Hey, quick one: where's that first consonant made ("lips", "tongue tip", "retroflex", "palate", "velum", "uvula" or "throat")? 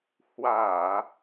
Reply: throat